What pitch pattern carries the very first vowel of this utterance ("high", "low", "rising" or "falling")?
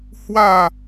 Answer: falling